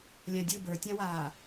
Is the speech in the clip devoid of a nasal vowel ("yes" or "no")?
no